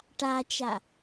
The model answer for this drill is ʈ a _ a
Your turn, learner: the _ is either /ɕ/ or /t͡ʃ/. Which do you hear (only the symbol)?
t͡ʃ